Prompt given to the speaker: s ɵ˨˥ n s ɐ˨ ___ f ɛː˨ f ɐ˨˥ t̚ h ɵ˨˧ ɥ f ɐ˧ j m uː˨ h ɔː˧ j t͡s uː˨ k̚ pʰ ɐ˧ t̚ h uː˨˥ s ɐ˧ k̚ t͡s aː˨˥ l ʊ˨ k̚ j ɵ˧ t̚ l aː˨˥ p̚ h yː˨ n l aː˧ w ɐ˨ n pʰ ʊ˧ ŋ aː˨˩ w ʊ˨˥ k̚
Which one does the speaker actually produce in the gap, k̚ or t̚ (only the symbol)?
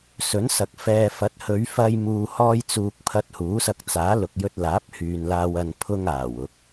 k̚